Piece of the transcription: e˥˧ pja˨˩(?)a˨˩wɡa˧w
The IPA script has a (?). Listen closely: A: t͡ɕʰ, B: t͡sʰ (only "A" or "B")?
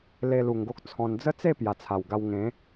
B